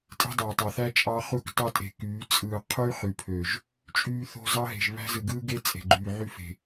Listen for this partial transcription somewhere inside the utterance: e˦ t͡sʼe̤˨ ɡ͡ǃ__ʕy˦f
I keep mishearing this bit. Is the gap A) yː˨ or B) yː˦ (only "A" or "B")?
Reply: A